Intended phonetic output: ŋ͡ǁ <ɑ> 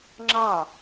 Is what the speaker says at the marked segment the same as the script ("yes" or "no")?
yes